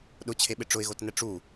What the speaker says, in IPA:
ɗ ʊ t͡ɕʰ e ɓ ɪ ʈ͡ʂ ʊ ɪ̯ ɣ o t n ɛ ʈ͡ʂ u

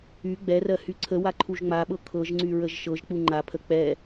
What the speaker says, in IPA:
y ɡ͡b ɛ r ɜ h y ǀʰ ə w a ǃʰ u ʒ ŋ͡m a ɓ ɤ kʰ ɤ ʒ ŋ͡ǀ y ɹ ə ʒ ʃ ɤ ʒ k͡p u ŋ͡ǃ a pʰ ə k͡p ɛ

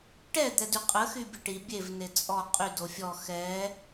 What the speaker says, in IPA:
ʈ ɛ d̪ ɛ d y qʼ ə x y bʲ ə ʈ i bʲ e v n e t͡sʼ ɔ qʼ y d o fʲ ɔ x ɛ

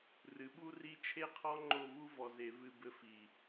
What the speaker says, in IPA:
r ɨ˩˧ ɓ u˥ r i˥˧ t͡ʃʰ e˥ qʰ ɔ˥ ŋ͡ǃ o˥˧ v u˥ v ɔ˧ z e˧ v ɨ˥˧ b ɘ˥ f i˧˩

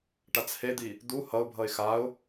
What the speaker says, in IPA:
ʈ a t͡s h e d̪ i | d̪ u h ʌ ʊ̯ bʱ ʌ ɪ̯ x a ʊ̯

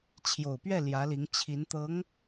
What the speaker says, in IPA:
t͡ɕʰ j o˨˩ ʊ̯ p ɥ ɛ˥˩ l j ä˧˥ l i˧˥ ŋ t͡ɕʰ i˧˥ n t̪ ɤ˧˥ ŋ

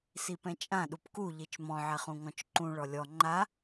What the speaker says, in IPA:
s i p ɛ̃ t͡ʃʼ ã ɗ u p k u ʎ i t͡ʃ m ɔ̃ ʕ ɛ χ ũ ŋ ɔ̃ t͡ʃ ǃ ũ ɭ ɔ lʲ ɔ ŋ͡ǃ a

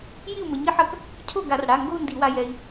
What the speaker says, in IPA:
j i˥˩ u̯ m ɘ˩˥ ɲ i˥˧ ħ ɐ˥˩ k | cʰ o˥˩ ɡ a˧˩˧ r ɽ a˩˧˩ ŋ ɡ o˥˧ u̯ n d i˧˩˧ w a˧ j ɛ˧ i̯

